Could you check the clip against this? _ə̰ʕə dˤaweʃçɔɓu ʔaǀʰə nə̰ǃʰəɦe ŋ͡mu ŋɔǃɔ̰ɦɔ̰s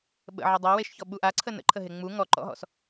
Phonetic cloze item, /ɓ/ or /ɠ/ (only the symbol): ɓ